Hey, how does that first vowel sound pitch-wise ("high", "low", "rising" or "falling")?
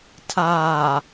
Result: low